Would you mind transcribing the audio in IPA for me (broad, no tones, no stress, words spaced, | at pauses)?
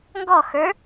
ŋɡɔxə˞